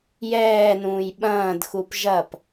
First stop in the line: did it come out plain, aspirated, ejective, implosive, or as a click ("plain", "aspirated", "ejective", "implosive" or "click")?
implosive